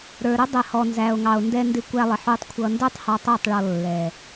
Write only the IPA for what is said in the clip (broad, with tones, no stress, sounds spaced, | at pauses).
ɾ ə˞˨ ɾ ʊ˦ dˤ ɛ˨ h ɔ˨ n z æ˨ o̯ ŋ ɑ˨ o̯ n d ɛ˧ n d ɪ˧ kʷ æ˧ lˠ ɪ˨ ħ u˧ tˤ kʷʰ ʌ˧ n d ə˞˦ tˤ h ɑ˧ tˤ æ˦˨ tˤ ɭ ɔ˨ lː ɛ˨